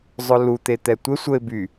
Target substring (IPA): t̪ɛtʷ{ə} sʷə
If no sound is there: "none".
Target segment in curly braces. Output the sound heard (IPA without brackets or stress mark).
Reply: ə